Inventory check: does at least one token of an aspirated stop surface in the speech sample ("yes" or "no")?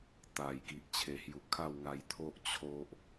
yes